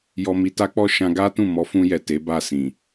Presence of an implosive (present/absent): absent